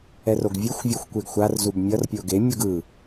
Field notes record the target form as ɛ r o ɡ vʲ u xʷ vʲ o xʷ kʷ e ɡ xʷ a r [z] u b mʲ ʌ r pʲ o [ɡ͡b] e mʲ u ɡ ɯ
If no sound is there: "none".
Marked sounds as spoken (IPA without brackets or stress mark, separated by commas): z, ɡ